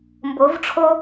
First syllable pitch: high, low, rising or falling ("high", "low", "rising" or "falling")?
rising